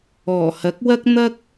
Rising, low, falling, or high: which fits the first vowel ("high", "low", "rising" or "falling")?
low